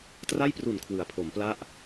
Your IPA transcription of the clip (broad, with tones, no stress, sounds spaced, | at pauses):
t r a˥˩ j p r u˨˩ n kʰ w ɯ˩˦ a̯ pʰ o˩˦ m p l a˥˩ ʔ